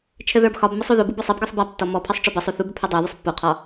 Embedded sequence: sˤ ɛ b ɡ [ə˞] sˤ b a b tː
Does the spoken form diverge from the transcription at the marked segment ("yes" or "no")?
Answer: no